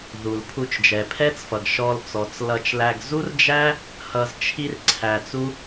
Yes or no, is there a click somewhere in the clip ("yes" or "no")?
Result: yes